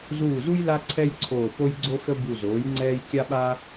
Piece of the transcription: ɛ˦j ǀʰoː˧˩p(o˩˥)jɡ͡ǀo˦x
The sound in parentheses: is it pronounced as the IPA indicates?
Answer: no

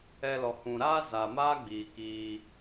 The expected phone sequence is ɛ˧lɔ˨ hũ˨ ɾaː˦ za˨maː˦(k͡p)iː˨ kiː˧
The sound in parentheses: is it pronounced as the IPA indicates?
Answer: no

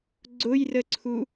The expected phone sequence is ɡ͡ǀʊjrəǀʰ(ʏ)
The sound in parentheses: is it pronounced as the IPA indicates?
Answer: no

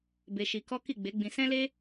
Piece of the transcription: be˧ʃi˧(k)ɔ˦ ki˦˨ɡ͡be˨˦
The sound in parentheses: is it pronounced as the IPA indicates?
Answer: yes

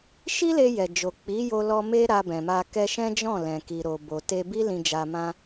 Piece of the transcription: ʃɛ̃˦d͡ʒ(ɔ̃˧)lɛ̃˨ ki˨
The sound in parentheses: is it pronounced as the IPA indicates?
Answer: no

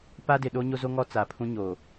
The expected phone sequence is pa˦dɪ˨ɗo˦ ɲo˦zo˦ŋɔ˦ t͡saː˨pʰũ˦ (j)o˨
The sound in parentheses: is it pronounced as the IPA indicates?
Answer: no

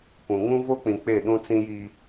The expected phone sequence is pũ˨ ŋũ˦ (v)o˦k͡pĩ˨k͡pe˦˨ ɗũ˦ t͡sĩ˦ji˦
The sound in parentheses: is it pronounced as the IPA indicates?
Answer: yes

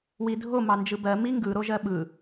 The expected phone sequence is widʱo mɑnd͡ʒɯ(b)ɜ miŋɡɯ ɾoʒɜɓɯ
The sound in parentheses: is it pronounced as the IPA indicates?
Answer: yes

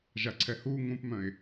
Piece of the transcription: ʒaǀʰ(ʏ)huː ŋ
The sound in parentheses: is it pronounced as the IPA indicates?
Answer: no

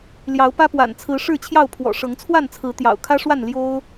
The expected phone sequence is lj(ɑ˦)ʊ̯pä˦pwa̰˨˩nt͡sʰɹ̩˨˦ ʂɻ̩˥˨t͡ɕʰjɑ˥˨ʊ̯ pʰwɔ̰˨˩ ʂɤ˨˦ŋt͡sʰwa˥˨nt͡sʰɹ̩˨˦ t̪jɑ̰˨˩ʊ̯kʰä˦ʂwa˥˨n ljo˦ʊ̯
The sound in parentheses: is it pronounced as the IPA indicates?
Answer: no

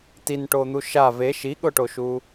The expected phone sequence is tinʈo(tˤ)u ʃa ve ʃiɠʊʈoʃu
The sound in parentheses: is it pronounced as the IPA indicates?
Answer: no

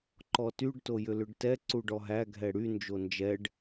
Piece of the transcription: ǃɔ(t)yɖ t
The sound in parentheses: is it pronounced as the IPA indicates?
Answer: yes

